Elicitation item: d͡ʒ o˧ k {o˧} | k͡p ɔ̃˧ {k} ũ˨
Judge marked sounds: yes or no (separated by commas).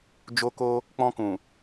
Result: yes, yes